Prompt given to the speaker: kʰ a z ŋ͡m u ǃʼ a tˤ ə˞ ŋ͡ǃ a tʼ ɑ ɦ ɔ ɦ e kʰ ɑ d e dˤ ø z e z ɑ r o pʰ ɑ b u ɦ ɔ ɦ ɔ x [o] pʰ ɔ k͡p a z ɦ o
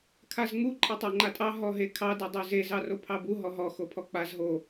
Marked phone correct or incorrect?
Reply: correct